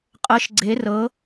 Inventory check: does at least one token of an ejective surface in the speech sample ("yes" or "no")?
yes